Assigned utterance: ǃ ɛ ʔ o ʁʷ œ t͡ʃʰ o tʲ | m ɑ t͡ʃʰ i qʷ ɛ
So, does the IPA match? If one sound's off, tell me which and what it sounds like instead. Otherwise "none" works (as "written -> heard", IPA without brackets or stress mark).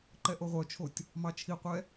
none